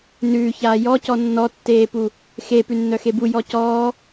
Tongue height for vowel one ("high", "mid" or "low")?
high